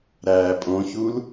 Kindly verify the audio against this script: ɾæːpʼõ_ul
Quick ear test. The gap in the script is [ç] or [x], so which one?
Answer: ç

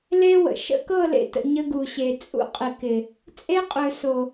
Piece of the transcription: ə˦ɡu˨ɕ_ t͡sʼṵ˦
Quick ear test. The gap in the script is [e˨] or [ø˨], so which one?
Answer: e˨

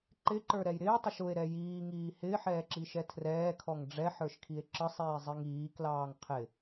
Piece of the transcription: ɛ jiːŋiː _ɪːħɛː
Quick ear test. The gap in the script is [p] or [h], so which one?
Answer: h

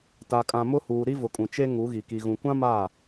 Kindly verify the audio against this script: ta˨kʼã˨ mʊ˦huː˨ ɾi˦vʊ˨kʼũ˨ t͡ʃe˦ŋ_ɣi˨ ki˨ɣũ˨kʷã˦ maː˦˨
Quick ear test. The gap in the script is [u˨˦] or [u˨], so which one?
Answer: u˨˦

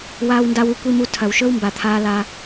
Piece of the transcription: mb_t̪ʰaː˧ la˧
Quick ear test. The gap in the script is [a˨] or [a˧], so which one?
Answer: a˨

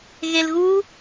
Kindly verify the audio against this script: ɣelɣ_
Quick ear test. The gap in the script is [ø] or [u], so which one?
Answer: u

